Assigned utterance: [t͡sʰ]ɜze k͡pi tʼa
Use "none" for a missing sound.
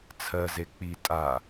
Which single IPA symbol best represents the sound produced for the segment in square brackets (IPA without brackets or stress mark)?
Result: t͡sʰ